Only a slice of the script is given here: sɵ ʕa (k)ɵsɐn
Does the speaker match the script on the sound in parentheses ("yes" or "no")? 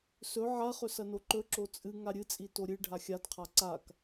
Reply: no